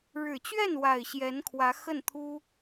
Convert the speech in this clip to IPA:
ɻ ɻ̩˨˩ t͡ɕ ɥ ɛ˥˩ n w a˨˩ ɪ̯ ɕ j ɛ˧˥ n kʰ w ä˧˥ x ə˥˩ n t̪ʰ u˥

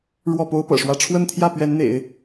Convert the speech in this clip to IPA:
ɻ w ɔ˥˩ p o˥ ʊ̯ p ɤ̰˨˩ ʂ w ä˥˧ ʈ͡ʂʰ w ə˥˧ n t̪ʰ j ä˥˩ p ɥ ɛ˧˥ n n̪ ḛ˨˩˦ ɪ̯

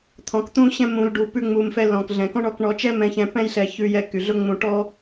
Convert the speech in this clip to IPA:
t̪ʰ ɔ̃˩ k t̪ ũ˧ ɕ ɛ̃˧ m ũ˩ l ɖ u˩ p ʉ˧ ŋ͡m u˩ m f ɛ˧ l ɔ̃˩ k ɮ ɛ̃˩ k ɔ̃˥ ɳ ɔ˧ k ɳ ɔ˧ t͡ʃ ɛ˥ m ɛ̃˧ ç ɛ̃˧ p ɛ̃˥ j ɬ ɛ˧ ç ʉ˧ j ɛ˧ k y˩ ɮ ʊ˥ ŋ͡m ũ˧ ʈ ɔ˥

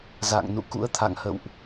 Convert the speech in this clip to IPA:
z a̰˧˨ ŋ n ṵ˧˨ k ṵ˧˥ ə̯ t̪ʰ a̰˧˨ ŋ h ə̰˧˨ w ʔ

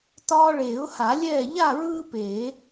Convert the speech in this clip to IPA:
t ɒː˦ ɭ eː˨˩˦ ʊ̯ h a˨˩˦ lʲ ɛː˥˨ ʎ a˥˨ ɹ ɯː˦ p eː˨˩˦

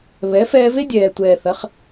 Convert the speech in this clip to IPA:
β ɛ˨˦ f ɛː˧ v e˦ dʲ ɛː˨ tʷ ɛː˨ θ ɐ˨˦ χ

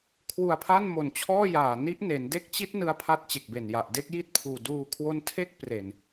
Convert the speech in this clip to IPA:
kʰ w u˧ a̯ pʰ a˥˩ n m o˨˩ n t͡ɕʰ ɔː˥˩ j aː˨˩ n i˦˥ ʔ n e˩˦ n d e˦˥ k̚ t͡ɕ i˦˥ t̚ n ɯ˦˥ a̯ pʰ a˦˥ t̚ t͡ɕ e˨˩ k̚ b e˨˩ n j a˨˩ ʔ d e˥˩ k̚ j i˥˩ t̚ pʰ uː˨˩ d uː˧ kʰ w o˦˥ n tʰ e˥˩ k̚ p r e˨˩ n

